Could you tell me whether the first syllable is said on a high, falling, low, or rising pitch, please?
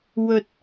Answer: low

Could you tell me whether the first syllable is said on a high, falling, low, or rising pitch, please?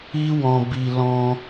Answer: high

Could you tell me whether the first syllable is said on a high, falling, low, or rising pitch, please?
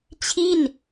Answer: falling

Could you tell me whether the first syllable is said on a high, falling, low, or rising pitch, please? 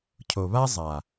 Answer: low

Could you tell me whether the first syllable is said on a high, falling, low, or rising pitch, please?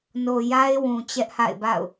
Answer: low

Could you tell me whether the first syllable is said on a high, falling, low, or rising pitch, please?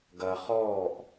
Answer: low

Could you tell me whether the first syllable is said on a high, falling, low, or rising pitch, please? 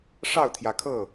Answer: falling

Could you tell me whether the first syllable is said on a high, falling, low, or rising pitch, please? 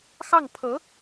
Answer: falling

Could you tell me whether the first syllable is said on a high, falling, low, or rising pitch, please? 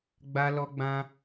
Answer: high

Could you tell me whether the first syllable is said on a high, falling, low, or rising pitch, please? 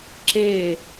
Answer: falling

